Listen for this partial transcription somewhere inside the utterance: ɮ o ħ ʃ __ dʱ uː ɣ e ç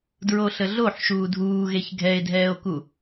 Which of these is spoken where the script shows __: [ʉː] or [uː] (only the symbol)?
uː